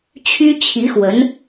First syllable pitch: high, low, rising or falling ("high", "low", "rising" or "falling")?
high